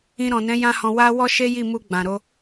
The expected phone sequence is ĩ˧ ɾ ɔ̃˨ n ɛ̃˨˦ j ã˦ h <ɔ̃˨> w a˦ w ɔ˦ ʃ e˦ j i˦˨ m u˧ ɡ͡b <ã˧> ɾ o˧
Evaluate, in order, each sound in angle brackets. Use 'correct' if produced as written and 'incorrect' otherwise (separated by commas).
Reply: incorrect, incorrect